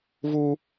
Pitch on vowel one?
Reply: high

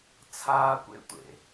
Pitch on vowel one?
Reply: high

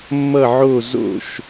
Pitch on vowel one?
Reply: falling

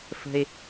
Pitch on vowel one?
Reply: low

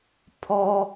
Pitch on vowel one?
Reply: low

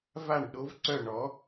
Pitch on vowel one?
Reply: falling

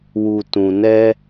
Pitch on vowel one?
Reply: low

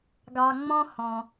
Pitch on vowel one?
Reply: low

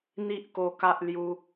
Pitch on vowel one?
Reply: high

